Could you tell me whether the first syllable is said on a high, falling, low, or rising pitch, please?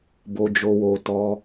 low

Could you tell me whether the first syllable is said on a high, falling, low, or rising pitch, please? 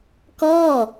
falling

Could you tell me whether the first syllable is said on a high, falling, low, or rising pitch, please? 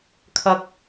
low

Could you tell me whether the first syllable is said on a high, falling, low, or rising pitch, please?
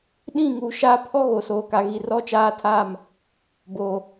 falling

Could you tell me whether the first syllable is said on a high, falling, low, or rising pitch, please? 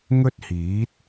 high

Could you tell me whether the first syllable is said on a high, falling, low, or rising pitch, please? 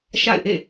falling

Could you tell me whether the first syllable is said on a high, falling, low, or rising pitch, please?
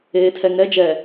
low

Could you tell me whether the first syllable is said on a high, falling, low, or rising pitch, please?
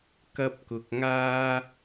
high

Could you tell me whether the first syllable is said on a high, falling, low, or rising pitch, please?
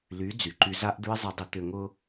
rising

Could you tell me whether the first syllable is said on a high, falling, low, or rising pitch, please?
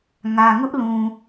low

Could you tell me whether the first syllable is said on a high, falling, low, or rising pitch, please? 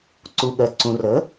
low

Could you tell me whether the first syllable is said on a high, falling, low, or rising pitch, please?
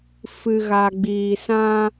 low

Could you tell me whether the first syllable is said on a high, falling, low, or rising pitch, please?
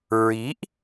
rising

